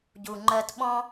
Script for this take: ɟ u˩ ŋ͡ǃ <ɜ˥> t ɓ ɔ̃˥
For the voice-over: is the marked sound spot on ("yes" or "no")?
no